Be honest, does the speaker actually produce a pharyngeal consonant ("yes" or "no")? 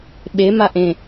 no